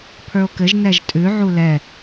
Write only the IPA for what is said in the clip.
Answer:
pʰ ə˞ o̯ k ɘ ʒ n ɛ ʒ tʼ ʉ ʕ u l ɛ

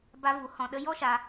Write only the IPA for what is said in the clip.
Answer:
b a˧ v u˨˦ h ɔ̃˨ ɗ ə˧ j ɔ˦ ʃ aː˧

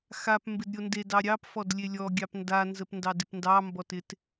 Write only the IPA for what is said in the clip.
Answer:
x a p m b ɪ d ɾʲ o n d e d ɑ ɾʲ ɑ p f ɔ d lʲ e lʲ ɔ ɡʲ ɑ p n d a n z ə p n d ɑ d ɪ p n d ɑ m b ɔ t ɪ t

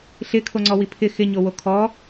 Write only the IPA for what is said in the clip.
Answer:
ɬ ɪ kʰ o ŋ͡ǀ ɔ w i pʰ ɪ x ɪ ɲ o w o kʰ ɔ

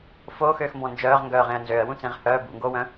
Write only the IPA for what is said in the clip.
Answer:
f o x øː x m b ɔ̃ n d͡ʒ œː ʁ ŋ ɡ œː ʁ ẽ ə̯ n z ø ə̯ w ũ t͡s ẽ ʁ h œː b ṵ ŋ ɡ oː w œ̃

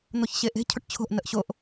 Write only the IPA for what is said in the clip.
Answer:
n̪ o ç ɕ e ʔ e̤ cʰ ʊ ʈ t͡ɕʰ o̤ ʔ n ə ʔ ɕ o ʔ

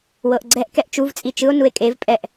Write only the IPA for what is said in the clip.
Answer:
w ɤ ʔ ɡ͡ǀ ɛ ʔ k ɛ ʔ t͡ʃ u v t͡sʼ i t͡ʃ ɯ o̯ n u e̯ kʼ e v pʼ ɛ ʔ

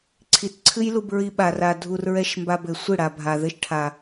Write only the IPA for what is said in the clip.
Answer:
ǀʰ i˨ t ǀʰ ɨ˦ j l u˧ b ɹ i˧ ɓ a˨ r a˨ dʱ u˨ r ɹ ɛ˨ ʃ m b a˨ b ɘ˨ sʷ ɨ˦˨ ɽ a˨ bʱ a˨ ð ɘ˦ ʃ ʈʰ a˨

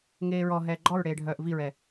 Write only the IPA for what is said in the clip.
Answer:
ŋ eː ɹ ɔ ɦ ɛː ɡ͡ǃ ɔ ɹ ɽ eː ɖʱ œː ʔ v i ɹ ɛ

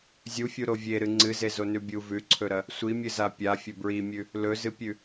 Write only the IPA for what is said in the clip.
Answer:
zʲ u fʲ u ɾ o vʲ e ɾ ɨ ŋ͡ǀ ɨ z e z o n ʉ bʲ u v ʉ ǀʰ ɵ ɾ ɐ | sʷ i mʲ ɨ z a pʲ a fʲ ɵ b ɹ i mʲ ʉ | l ɵ z ɨ pʲ ʉ

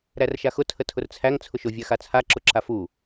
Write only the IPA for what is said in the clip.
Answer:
ɾ æ r ʃ a x ʊ tʰ ə tʰ ʊ r t͡sʰ æ ŋ t͡sʰ ʊ ʃ ʊ vʲ a x a t͡sʰ a ǁ ʊ ǁ a f u

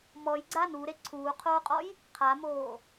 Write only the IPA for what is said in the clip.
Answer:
m ɔ j ɡ͡ǀ a n u ɾ e ǀʰ uː qʰ oː qʼ ɔ j | qʰ a m oː

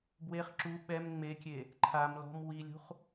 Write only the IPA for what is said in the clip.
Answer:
b w e χ ǁ u ɓ ɛ m ŋ͡m e kʲ e | ǃʰ a m l ɔ̤ m w i lʲ ṳ χ

